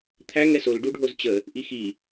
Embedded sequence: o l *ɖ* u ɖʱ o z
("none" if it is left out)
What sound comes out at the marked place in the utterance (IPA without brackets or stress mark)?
ɖ